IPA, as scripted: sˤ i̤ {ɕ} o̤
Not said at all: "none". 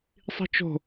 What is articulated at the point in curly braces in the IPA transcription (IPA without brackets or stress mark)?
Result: t͡ʃ